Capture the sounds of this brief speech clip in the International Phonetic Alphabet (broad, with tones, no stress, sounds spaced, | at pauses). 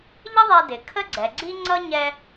ʎ ə˥ ðˤ ɛ˧ d ɪ˩ kʰ ə˥ ɡ͡ǀ ɛ˩ ɡ͡ǀ i˥ ŋ͡ǀ ʌ˥ ɲ ɛ˧